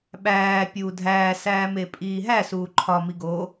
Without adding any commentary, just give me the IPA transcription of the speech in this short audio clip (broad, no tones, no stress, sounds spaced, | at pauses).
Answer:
ɓ æː pʲ uː dʱ æː s æː m e pʼ iː ɦ æ s uː ǃʰ ɒ m i ɡ oː